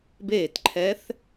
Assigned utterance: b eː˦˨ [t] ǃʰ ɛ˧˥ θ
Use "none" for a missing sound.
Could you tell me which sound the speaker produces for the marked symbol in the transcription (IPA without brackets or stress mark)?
t